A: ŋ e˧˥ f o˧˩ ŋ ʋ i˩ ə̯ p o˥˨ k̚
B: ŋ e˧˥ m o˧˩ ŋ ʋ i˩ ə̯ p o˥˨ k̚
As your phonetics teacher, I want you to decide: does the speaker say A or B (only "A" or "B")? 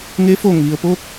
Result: A